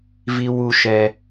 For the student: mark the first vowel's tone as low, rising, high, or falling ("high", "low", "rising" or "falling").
high